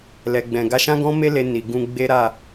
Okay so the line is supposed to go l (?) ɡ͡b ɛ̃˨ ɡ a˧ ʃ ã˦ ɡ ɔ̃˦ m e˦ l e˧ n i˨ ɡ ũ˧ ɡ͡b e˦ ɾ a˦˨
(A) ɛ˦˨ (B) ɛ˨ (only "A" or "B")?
B